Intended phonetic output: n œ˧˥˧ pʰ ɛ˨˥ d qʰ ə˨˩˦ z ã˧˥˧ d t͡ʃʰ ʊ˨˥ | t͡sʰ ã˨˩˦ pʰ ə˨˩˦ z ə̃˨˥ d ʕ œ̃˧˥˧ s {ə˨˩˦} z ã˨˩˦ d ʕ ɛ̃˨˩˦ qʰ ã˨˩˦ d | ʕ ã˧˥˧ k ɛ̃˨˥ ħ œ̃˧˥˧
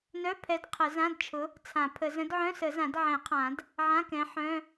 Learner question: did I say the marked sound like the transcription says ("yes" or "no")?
yes